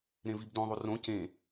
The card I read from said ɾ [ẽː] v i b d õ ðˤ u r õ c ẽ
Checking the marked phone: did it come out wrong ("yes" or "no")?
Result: yes